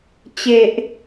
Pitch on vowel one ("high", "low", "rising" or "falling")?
low